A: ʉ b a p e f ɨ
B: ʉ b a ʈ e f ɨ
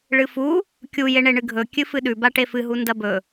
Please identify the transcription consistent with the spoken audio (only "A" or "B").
B